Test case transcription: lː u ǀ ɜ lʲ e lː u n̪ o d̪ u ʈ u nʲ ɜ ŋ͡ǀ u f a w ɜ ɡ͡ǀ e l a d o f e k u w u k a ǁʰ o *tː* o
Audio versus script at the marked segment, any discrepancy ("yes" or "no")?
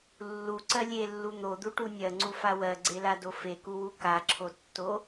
no